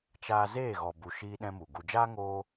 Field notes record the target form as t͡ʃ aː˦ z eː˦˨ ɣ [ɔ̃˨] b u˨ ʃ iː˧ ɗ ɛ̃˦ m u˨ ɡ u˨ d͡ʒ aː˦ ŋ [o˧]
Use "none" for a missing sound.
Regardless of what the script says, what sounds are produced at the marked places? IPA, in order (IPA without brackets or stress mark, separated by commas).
ɔ˨, oː˧